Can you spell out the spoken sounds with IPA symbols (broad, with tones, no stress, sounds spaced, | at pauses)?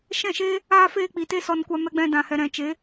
ʃ ɛ̃˦˨ ʃ eː˦ | aː˧ f eː˧ k͡p i˨ t e˦ s ɔ˧ n kʷ a˧ m ɛ˧ ɡ͡b ɛ̃˧ d ã˨ h ɛ˨ ɾ ɛ̃˨ t͡ʃ e˨˦